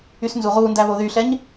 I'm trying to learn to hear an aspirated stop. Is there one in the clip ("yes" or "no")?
no